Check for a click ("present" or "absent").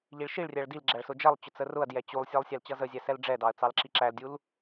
present